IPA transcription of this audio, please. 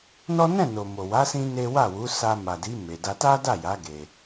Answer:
nɔ˦ nɛ̃˦˨no˨mo˨wa˨˦ sĩ˦ne˦ wa˦˨wu˨˦ sa˧ma˨di˨˦ me˧ da˧ta˦da˦˨ja˨˦ ɡe˧

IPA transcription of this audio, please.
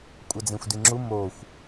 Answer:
kʷʼɐd͡zẽxʷdiŋ͡ǁu moxʷ

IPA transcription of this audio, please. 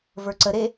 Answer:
və˞ǀəɾe

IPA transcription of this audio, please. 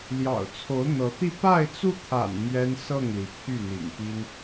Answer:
ljɑ̰˨˩ʊ̯t͡sʰo˧˥ʊ̯n̪ɤ˧˥t̪i˥˧ pa˥˧ɪ̯t͡su˥˩ t̪ʰa̰˨˩n mɥɛ˥nsɤ˥˩ŋli˩ pʰy˥˩n̪ḭ˨˩ŋpi˥n

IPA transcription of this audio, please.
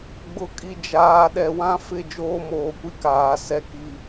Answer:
ɡ͡bʊ˨kʼi˨ d͡ʒaː˨ ɗɛ˨wã˦fɪ˦˨ d͡ʒoː˦moː˨kʷi˦kaː˨ sɛ˦ki˦

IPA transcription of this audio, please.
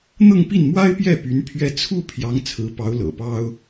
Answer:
n̪ɤ˥˧ŋpi˥˩nmwa˥ɪ̯pjɛ˥˩ py˧˥n pʰɥɛ˥˧ t͡sʰu˥˩ pʰjɑ˧˥ŋ t͡sʰɹ̩˧˥pɑ˧˥ʊ̯ lɤ̰˨˩pɑ˥ʊ̯

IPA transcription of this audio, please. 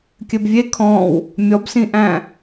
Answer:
kʲɘbvʲe kʰɔ̃w | mʲɔbsĩʔæ̃

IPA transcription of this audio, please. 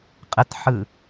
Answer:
qʼətħɯ

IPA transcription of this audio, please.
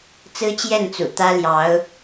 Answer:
t͡sɹ̩˥t͡ɕjɛ˥˩nt͡sṵ˨˩ t̪ä˥ljɑ˧˥ʊ̯

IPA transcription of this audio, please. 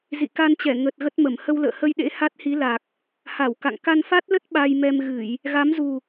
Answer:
zḭ˧˨ka˧nt͡ɕɛ˧˩ ŋə˨˩t̚ ɣə˦˥t̚mə˧˩m hə˧wlə̰ː˧˨hə˧jɗḛ˧˥ ha˦˥t̚hi˨˦ la˨˩k̚ | ha˧˩w ka̰˧˨ŋ ka˧nfa˦˥t̚lə˦˥t̚ ɓa˧jmɛ˧mɣɨ˧˩˨j | ɣa˨˦mzu˨˩

